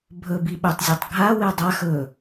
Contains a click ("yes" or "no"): no